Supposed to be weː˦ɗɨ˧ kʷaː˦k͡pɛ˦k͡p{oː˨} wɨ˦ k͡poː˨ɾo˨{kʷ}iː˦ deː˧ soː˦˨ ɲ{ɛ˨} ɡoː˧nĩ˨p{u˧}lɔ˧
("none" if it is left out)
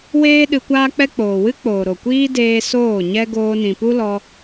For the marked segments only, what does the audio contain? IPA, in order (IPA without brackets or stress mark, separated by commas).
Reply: oː˨, kʷ, ɛ˦, u˦